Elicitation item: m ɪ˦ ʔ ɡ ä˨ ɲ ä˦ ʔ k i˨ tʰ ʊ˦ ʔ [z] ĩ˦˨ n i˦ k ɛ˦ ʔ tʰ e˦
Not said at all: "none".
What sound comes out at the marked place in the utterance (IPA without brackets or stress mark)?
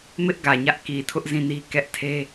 z